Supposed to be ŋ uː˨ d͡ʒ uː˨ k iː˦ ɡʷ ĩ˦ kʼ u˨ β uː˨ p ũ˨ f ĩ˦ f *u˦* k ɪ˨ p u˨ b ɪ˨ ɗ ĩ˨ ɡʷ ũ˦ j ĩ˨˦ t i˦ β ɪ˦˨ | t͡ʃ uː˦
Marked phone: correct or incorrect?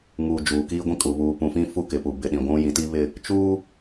correct